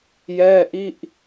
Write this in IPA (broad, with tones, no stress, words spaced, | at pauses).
jɛː˥˩ʔi˥˩ʔ